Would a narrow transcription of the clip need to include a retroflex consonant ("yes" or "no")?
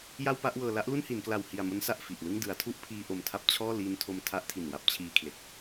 no